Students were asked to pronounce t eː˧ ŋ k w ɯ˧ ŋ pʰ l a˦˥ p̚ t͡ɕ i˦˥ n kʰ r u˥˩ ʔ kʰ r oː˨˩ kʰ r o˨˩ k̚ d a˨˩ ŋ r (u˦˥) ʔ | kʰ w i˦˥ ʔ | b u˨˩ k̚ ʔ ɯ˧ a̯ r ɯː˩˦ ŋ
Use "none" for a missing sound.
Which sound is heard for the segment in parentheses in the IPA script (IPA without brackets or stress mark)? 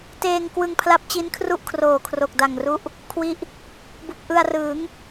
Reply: u˦˥